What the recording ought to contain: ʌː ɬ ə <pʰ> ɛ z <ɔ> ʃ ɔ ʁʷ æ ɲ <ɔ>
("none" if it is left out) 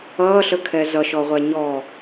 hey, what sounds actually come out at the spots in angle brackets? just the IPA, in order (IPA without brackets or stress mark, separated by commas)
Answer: kʰ, ʌ, ɔ